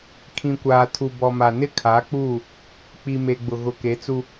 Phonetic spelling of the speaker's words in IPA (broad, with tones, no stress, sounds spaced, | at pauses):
kʰ ĩ˨ kʷ aː˨ tʰ u˨ b ɔ˨ m a˨ n ɪ˦ kʰ a˨˦ k͡p uː˦˨ | k͡p i˨ m e˨ ɡ͡b ʊ˨ ɣ ʊ˨ k e˨˦ t͡s u˦